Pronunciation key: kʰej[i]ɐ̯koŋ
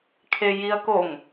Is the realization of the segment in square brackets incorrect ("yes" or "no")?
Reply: no